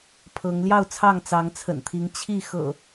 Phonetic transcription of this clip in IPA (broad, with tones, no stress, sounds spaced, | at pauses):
pʰ ɤ˨˦ ŋ l j ɑ˥˨ ʊ̯ t͡sʰ ɑ˥˨ ŋ t͡s ɑ˨˦ ŋ t͡sʰ ə̰˨˩ n t̪ʰ i˨˦ ŋ t͡ɕʰ i˥˨ x ɤ̰˨˩